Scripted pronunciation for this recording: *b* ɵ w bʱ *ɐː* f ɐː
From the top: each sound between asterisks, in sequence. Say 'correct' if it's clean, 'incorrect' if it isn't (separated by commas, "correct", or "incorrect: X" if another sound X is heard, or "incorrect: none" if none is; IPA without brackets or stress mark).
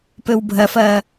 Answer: incorrect: p, incorrect: ɐ